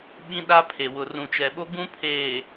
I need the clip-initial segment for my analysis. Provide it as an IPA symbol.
ɓ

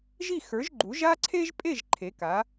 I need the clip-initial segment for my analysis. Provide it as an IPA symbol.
ʒ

